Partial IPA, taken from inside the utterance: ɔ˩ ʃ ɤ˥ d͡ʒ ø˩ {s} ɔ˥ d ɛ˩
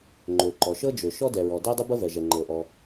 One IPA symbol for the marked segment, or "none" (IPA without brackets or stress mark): ʃ